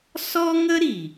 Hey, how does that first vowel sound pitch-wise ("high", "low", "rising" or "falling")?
high